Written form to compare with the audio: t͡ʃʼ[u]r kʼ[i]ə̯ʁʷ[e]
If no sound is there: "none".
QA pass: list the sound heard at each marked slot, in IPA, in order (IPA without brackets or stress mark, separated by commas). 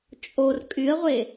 o, y, e